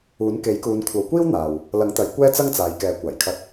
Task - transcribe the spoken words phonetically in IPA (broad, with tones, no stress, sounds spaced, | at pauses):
uː˨˥ n k e˨˥ j k uː˨˧ n kʷʰ ɐ˨˧ w kʷ iː˥ w n̪ aː˨ w | l ɐ˨˥ ŋ t̪ ɐ˨˧ j kʷ ɛː˥ t͡s ɐ˥ ŋ t͡s aː˨˧ j k ɛː˨˥ kʷ aː˨˩ j kʰ ɐ˧ t̚